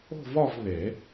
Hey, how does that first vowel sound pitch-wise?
falling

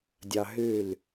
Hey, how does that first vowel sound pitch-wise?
high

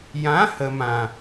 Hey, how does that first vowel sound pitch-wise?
rising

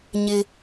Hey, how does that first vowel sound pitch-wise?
high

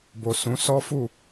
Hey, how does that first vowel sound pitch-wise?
low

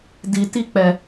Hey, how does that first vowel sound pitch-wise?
low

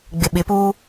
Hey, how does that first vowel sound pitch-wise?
low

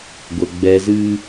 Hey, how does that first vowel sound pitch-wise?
low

